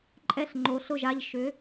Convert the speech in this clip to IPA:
ǃʼ ɛ˧˩ ɬ ŋ͡ǃ o˩˧ ɬ ʊ˧˩ ʒ a˧˩ ʎ ʃ ʏ˩˧

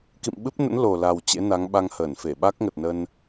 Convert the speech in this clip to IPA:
k ḭ˧˨ m ɓ ɨ˦˥ p̚ n ə̰˧˥ n l o˨˩ l a˨˩ w t͡ɕ ḛ˧˥ n a˨˦ ŋ ɓ a˧ ŋ h əː˧˩ n f e˧˩ ɓ a˦˥ k̚ ŋ ə˨˩ t̚ n ə˧ n

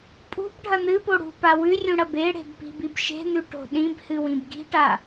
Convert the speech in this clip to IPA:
pʼ ṳ b ɖʱ ɐ n̪ ɨ p o ɽ ṳ p a w ʉ rʲ ũ ɽ ɐ b e ɽ e̤ b p i̤ b i b ʃ e̤ n̪ ʉ ʈ o̤ ɗ ĩ b h ɨ w ĩ b ɡ i̤ ʈ a

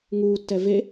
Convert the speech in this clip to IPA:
ŋ uː tː ɛ v e

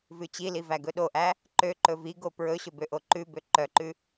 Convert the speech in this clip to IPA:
v ʉ t͡ɕ i l i v æ ɡ ɵ ɗ o ʔ æ | ǃ ø ǃ ɵ v i ɡ o p ɹ ɵ ɕ ɵ b ø ʔ o ǃ ʉ b ø ǃ œ ǃ ʉ

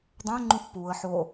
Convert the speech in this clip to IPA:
dˤ æ̃ ŋ͡ǃ ũ θ p u ə̯ ħ o

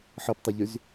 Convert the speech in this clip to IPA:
ħ ɤ p tˤ a ʎ y z

